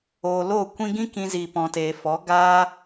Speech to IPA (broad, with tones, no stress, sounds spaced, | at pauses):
oː˨ l oː˦˨ kʷ ĩ˧ ɡ ĩ˦ k ĩ˧ z iː˨ p ɔ̃˨ t eː˨ f ɔ˨˦ ɡ aː˦